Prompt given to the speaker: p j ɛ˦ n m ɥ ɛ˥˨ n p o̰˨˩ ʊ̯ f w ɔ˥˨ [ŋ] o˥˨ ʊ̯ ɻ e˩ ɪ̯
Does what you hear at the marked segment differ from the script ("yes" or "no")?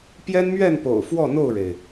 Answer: yes